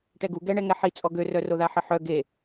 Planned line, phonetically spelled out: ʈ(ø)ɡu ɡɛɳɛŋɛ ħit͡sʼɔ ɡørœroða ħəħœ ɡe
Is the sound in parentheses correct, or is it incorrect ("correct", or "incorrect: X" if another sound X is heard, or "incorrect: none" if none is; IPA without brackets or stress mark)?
incorrect: ɛ